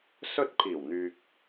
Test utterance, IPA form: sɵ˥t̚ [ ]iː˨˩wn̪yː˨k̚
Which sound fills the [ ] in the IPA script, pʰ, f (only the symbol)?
pʰ